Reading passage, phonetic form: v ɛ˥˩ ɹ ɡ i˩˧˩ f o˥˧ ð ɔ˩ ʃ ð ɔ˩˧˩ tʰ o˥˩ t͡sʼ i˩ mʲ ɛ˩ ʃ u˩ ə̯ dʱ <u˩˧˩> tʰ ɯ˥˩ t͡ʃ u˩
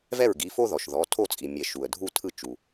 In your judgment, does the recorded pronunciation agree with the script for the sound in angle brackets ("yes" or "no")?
no